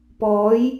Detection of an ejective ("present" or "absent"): absent